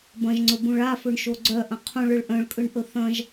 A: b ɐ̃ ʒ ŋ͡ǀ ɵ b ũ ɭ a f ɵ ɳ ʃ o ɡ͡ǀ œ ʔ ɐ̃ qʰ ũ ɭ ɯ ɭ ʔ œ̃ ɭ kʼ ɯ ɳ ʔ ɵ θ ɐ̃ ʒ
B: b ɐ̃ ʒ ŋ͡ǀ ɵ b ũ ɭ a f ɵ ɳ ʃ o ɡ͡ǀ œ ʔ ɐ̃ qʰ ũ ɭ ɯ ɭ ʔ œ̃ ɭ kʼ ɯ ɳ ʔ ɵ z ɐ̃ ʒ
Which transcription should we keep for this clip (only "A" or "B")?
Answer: A